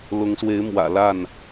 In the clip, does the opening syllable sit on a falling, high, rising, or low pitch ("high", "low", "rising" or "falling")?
rising